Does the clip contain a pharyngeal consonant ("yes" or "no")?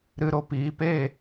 no